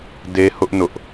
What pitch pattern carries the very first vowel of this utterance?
high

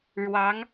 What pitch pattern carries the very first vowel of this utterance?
rising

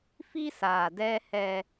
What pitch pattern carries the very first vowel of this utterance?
high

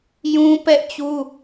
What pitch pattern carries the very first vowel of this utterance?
high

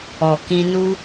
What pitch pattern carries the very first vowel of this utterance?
low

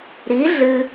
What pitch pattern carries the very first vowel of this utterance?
rising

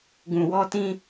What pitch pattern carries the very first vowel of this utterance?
low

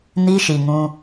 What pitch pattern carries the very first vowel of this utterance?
high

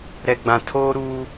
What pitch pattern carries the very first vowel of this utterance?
low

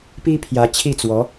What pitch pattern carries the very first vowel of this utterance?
high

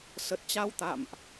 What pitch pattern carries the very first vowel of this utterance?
low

